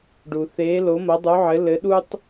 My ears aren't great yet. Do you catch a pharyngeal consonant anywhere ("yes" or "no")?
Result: yes